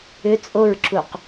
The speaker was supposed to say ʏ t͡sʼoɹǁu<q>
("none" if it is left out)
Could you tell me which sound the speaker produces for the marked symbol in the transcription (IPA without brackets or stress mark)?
q